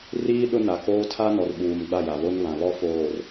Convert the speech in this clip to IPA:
riː˦ ɗʊ˦na˨koː˦ tʰa˦nɔ˨rɓuː˨m ɡ͡ba˦˨ ja˨βo˦n βã˨βɔ˦ foː˨r

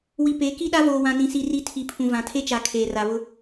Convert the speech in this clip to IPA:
wi˨pe˨˦ki˦ɗa˦ voː˨wã˨nĩ˨si˨ ri˦ tʰi˨pʰũ˨ vã˨tʰe˦t͡ʃa˨ kʰeː˨ra˨βʊ˦

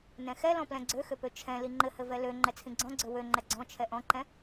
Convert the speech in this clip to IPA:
nɛ̃xɛlɔ̃ plɛ̃ɡ͡ǀøxøpø t͡ʃʰɛ̃ liŋ͡ǃɘhɘ vɛlø ŋ͡ǃɛt͡sʰĩɡ͡ǀɔ̃ɡ͡ǀø wø ŋ͡ǃɛɡ͡ǀɔ̃ t͡ʃʰɛʔɔ̃ǃɛ̃

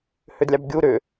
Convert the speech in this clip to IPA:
hʏdlʲɑbɡʲu ɾʏ

